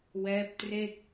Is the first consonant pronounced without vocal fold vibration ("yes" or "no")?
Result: no